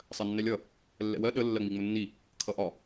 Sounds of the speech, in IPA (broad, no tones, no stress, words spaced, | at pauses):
sˤɜnːɛlʲʌ | lːɛ̰wɜ ɗə lːɜŋ͡miŋ͡mʊnːi | kʰʌʔɒ